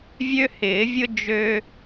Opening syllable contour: high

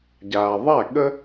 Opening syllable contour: low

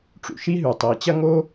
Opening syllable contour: low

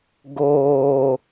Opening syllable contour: low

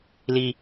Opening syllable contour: low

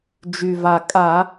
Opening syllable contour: low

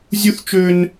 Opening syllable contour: high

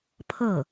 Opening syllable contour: falling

